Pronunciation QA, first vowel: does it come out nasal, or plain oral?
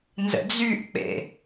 oral